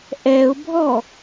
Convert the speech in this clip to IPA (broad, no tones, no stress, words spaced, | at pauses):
ʔɛʊ̯bʱɔ